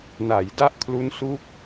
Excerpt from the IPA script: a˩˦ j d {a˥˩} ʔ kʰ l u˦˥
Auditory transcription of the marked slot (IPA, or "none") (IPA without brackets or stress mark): a˥˩